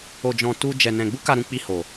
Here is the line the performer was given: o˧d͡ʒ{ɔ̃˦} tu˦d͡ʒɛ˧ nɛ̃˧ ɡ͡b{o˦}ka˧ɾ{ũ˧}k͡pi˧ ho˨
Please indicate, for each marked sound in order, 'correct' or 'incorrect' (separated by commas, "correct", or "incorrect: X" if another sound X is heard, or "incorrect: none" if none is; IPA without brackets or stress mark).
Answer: incorrect: ɔ̃˧, incorrect: u˦, correct